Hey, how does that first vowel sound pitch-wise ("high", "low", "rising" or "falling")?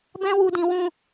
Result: high